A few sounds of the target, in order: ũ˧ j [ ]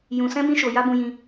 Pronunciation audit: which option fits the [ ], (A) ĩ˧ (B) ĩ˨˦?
A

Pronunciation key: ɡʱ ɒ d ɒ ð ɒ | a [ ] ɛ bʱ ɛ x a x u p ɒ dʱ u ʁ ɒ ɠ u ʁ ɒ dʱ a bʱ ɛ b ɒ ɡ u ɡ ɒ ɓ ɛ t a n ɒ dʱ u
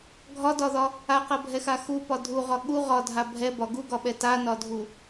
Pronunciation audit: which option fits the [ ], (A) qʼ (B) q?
B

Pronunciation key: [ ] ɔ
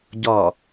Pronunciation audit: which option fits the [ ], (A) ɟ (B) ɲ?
A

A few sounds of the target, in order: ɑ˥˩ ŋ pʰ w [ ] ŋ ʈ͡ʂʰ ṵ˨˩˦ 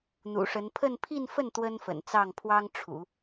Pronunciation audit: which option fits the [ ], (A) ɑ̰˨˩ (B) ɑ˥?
B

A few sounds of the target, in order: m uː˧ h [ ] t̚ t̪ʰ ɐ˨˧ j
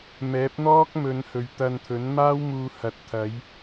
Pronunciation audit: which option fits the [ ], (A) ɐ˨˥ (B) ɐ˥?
A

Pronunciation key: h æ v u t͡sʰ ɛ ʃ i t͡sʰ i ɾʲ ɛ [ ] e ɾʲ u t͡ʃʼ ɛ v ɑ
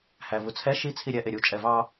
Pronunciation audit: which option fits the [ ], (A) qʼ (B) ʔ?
B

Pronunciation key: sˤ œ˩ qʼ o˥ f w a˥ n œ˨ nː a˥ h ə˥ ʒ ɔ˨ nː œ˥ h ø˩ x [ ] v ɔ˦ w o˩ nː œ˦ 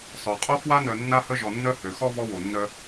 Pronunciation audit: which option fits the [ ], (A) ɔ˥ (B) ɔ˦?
B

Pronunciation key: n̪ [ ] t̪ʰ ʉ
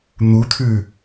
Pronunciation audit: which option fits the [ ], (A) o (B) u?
B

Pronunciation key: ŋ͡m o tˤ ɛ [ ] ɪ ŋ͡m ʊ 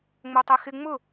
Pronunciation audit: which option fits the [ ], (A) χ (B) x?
B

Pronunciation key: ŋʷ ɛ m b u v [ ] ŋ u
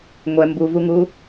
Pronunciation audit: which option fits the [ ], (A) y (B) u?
B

